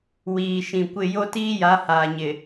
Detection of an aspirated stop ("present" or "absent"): absent